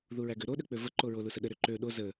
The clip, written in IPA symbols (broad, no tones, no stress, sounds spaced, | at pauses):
ð u ɹ æ ɡ ø ɾ o ɗ ø k͡p ø v ə ǃ o ɹ o l u s ə ɗ ə ɾ ø ǃ ø ɗ o z ə